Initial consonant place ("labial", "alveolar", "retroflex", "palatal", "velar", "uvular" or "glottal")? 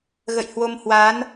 velar